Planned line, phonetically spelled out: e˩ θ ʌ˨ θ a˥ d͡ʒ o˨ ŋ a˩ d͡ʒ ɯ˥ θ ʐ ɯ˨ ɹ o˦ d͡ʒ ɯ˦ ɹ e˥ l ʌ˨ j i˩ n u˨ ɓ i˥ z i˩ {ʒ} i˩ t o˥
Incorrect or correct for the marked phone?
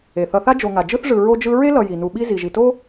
correct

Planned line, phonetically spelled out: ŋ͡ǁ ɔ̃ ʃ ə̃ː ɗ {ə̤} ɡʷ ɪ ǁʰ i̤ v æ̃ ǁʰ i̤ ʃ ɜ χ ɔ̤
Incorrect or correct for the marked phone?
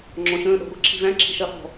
incorrect: ɔ̤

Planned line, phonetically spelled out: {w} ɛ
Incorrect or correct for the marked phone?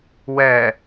correct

